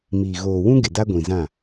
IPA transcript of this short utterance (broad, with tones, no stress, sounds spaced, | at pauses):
m iː˨ ɣ oː˨ w ũ˦ ɡ ɪ˨ d a˦ ɡʷ ĩ˨ z ã˦˨